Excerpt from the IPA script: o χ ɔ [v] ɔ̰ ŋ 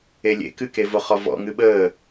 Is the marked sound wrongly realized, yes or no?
no